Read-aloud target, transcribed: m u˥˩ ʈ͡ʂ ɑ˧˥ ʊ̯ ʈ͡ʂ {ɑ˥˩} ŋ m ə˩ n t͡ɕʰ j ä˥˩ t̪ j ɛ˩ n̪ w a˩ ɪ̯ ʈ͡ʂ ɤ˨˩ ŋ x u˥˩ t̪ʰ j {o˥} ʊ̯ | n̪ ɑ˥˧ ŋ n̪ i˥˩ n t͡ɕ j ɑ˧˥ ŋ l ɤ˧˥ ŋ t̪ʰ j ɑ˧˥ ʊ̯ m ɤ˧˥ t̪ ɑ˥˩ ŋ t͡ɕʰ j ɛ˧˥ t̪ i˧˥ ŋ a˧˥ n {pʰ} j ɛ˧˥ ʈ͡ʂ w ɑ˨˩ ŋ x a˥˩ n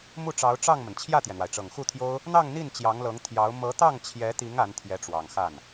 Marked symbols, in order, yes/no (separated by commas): yes, yes, no